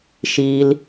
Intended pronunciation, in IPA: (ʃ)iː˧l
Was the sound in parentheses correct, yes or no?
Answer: yes